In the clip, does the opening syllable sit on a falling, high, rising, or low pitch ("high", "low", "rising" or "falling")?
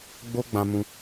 high